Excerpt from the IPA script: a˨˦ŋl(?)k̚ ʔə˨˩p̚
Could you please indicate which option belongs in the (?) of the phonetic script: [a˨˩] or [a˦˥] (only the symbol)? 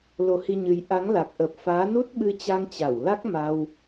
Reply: a˨˩